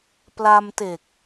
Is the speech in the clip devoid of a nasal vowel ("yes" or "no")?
yes